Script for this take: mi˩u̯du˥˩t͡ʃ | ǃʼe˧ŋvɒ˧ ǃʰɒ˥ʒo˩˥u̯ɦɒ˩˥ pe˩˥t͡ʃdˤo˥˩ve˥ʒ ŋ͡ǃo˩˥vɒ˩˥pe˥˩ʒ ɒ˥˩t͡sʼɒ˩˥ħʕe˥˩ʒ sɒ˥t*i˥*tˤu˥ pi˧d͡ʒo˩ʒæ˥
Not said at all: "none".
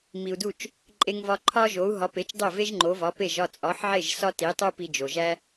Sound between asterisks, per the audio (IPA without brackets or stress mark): i˩˥